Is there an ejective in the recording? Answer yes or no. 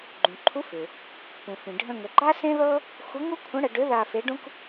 no